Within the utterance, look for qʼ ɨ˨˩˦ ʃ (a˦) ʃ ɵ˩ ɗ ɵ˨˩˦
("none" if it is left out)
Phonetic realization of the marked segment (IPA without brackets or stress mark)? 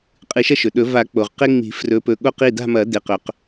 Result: ɐ˦